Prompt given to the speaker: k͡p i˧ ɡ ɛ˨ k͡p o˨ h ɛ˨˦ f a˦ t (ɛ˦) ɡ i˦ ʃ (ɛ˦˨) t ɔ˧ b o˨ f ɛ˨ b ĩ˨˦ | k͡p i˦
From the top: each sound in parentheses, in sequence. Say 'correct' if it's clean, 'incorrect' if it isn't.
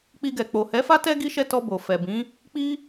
correct, correct

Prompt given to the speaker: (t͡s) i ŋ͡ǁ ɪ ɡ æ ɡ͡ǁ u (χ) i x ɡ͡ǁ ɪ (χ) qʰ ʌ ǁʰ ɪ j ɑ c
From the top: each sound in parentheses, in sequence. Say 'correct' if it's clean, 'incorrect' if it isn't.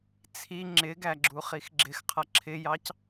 incorrect: t͡sʰ, correct, incorrect: x

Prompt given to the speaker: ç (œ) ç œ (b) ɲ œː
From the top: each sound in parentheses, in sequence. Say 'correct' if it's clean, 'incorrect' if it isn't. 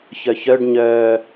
correct, incorrect: ɖ

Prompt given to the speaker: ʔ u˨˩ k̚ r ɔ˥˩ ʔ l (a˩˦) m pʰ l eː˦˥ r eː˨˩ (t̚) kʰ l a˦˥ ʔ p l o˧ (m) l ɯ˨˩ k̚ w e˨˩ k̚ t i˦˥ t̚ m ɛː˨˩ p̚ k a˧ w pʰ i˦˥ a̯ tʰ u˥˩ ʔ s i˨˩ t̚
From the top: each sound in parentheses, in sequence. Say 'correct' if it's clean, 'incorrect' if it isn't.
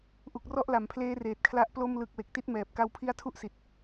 correct, correct, correct

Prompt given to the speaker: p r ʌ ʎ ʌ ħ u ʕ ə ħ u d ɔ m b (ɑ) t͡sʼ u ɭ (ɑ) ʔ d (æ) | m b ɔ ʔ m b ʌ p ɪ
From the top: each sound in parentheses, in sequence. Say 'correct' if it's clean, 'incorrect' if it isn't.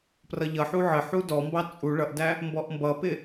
correct, incorrect: ʌ, correct

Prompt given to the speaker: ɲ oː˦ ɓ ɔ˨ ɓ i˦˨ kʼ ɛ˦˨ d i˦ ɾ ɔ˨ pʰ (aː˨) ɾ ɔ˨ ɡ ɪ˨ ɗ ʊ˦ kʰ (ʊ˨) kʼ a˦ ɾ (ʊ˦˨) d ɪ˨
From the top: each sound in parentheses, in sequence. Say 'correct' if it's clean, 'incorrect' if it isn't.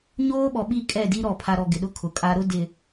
incorrect: a˨, correct, incorrect: ʊ˦

